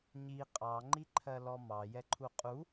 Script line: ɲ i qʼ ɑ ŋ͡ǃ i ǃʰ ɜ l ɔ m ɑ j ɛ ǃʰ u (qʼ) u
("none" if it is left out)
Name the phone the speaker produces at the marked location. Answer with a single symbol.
qʼ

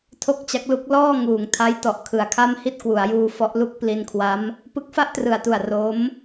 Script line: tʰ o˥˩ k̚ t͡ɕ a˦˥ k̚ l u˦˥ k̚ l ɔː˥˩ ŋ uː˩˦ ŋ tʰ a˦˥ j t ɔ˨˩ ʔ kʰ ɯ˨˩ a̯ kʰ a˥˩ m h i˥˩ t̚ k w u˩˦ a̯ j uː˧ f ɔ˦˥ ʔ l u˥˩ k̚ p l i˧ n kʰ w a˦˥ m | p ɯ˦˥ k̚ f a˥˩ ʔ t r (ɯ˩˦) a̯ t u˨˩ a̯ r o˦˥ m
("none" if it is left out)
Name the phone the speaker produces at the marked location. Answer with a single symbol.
ɯ˨˩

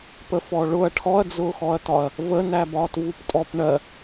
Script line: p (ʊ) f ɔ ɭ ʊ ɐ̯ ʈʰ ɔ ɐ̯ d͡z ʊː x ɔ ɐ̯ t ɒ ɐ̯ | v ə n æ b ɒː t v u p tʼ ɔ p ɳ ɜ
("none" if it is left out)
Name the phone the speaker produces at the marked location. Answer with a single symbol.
ə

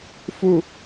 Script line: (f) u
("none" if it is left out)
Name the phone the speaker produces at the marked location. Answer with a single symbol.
f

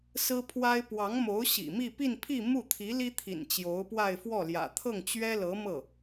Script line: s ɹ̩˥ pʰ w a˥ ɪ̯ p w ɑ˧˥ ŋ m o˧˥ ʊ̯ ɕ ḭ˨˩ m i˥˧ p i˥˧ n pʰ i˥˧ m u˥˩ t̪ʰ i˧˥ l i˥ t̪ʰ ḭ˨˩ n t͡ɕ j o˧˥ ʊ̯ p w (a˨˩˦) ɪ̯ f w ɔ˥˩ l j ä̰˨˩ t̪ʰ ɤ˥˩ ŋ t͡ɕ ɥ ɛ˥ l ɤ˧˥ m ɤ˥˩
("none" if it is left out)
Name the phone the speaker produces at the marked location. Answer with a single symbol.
a˥˧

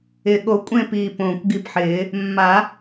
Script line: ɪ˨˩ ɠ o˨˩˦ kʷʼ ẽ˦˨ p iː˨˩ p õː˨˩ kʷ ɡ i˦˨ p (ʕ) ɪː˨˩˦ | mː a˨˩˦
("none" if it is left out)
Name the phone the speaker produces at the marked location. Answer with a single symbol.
ħ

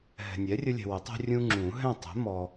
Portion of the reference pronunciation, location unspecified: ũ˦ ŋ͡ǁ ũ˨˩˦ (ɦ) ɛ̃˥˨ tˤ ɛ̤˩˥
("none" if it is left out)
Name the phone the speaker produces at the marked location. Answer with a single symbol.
ɦ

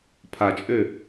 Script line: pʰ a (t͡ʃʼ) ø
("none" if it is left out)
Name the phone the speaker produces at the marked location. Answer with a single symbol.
t͡ʃʼ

